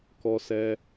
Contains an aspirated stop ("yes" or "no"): no